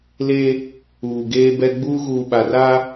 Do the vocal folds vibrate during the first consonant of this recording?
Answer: yes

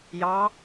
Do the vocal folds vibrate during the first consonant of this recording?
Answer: yes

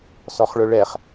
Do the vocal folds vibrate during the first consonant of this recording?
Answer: no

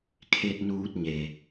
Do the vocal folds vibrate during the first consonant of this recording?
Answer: no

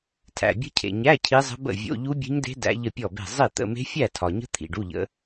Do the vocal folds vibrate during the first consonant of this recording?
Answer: no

